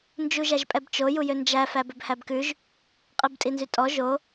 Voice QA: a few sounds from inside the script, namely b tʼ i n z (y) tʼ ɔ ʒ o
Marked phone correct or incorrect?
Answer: correct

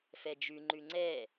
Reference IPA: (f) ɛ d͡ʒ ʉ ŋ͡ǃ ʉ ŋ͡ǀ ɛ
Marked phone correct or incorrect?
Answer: correct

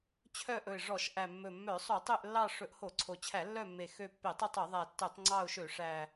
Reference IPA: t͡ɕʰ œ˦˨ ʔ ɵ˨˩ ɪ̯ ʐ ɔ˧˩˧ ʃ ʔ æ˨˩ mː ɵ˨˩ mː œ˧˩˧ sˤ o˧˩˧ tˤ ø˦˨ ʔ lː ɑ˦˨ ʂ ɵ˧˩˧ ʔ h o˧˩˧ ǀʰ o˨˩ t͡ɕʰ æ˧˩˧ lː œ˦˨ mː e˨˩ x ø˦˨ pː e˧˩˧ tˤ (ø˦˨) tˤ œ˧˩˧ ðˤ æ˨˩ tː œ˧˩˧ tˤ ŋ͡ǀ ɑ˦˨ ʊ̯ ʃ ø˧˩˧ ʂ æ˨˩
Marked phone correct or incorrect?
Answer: incorrect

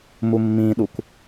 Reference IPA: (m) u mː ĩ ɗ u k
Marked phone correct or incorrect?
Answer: correct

